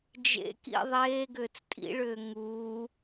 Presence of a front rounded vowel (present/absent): present